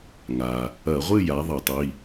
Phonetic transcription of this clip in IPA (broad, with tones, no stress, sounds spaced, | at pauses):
ŋ a˩ | ɐ˧˩˧ ʁʷ ɨ˥˨ j a˩˥ ðˤ ɐ˧˩˧ tˤ i˩˧˩